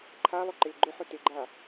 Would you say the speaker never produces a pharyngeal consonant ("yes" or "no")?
no